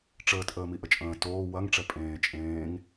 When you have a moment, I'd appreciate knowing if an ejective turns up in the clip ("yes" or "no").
yes